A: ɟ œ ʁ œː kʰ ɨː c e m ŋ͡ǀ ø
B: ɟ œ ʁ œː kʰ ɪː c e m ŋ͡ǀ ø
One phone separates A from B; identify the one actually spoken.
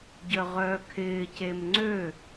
B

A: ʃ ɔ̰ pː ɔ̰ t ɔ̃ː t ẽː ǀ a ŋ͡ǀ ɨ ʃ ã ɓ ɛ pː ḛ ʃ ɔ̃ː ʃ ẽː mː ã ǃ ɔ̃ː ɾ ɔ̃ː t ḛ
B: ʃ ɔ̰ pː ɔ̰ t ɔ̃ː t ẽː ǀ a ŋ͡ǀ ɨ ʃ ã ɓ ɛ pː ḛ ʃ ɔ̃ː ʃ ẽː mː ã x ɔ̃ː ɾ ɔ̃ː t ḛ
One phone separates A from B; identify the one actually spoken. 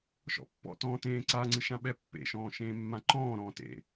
A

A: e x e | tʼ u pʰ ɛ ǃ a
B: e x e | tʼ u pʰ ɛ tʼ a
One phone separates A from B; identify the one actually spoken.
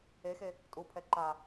A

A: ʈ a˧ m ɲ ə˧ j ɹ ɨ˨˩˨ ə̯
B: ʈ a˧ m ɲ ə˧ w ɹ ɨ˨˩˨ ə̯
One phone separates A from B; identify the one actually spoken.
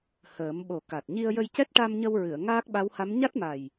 B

